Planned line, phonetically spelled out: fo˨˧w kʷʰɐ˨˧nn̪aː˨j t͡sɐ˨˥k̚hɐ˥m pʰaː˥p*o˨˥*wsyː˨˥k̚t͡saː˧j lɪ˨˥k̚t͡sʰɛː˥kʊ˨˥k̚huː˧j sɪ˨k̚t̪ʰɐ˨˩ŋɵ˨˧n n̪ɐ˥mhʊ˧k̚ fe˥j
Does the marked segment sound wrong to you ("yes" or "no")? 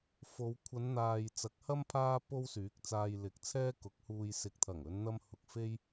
yes